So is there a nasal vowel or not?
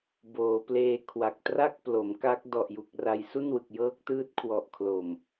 no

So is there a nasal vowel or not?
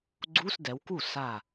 no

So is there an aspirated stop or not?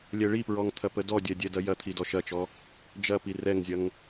yes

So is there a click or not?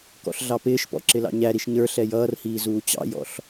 yes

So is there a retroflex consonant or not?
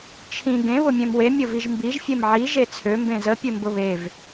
no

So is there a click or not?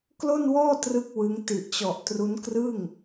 no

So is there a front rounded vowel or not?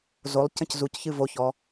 no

